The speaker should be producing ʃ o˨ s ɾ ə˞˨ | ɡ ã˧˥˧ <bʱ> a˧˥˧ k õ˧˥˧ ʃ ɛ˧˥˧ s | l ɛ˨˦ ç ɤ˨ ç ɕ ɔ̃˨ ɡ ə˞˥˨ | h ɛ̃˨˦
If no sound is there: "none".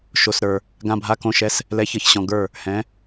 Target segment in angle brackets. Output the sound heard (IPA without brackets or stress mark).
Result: bʱ